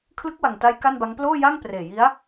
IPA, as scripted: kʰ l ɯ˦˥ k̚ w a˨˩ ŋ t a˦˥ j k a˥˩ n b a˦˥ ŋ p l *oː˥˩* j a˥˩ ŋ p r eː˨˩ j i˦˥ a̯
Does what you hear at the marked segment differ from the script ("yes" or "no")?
no